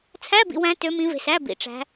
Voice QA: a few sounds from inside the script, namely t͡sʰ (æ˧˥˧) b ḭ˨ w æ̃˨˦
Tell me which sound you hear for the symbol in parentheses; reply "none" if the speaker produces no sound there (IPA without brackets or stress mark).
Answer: æ˧˥˧